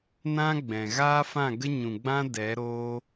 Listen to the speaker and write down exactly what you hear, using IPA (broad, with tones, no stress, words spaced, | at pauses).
nã˦ ɡ͡bɛ̃˨ ɣaː˦fã˦˨ɡə˦ ɲũ˨ɡ͡bã˦ dɛ˨˦ ɾoː˦